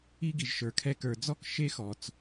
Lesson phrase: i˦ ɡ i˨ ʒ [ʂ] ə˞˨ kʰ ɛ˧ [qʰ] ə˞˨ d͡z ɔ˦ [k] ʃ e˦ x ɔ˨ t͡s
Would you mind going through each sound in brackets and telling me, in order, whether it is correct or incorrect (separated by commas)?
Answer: incorrect, incorrect, correct